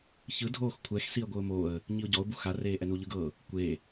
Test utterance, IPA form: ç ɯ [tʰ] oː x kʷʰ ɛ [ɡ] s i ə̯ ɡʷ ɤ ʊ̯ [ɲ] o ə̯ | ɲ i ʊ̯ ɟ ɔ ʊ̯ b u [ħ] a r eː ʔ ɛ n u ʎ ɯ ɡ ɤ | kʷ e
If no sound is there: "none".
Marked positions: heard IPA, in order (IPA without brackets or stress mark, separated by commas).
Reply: dʱ, x, m, x